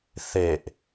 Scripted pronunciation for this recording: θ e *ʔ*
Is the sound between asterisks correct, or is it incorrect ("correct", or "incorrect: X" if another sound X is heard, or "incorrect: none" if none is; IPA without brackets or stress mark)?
correct